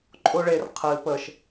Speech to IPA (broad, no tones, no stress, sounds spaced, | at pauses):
ǃʼ ʊ ɭ e r qʰ ɨ p ə ʃ